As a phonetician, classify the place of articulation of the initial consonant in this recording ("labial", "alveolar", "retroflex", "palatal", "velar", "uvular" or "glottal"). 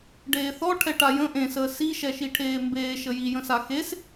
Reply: retroflex